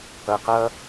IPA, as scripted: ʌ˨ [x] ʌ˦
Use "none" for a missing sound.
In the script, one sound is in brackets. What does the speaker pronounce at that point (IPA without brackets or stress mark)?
q